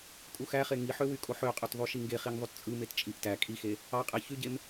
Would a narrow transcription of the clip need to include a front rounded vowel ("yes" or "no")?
yes